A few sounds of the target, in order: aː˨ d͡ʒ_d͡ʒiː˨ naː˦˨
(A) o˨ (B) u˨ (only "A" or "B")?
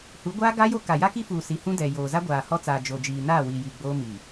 A